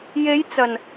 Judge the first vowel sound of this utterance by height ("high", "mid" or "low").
mid